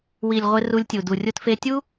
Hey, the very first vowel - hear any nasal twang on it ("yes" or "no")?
no